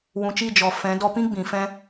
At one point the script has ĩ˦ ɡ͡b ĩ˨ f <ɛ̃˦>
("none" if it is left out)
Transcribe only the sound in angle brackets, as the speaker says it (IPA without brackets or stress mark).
ɛ̃˦